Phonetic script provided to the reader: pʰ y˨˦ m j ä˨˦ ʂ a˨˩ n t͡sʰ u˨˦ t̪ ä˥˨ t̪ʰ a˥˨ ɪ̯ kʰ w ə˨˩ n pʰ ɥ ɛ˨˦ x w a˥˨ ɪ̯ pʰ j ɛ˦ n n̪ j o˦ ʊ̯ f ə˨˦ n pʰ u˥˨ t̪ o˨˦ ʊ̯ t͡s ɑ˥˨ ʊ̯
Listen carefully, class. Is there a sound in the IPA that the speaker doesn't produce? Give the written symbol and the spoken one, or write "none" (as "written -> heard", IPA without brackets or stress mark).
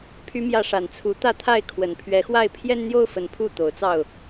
none